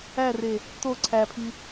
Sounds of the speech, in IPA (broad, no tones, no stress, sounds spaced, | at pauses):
æ r e | t o ǀʰ æ pʰ i